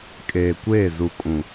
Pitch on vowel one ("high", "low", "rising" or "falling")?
low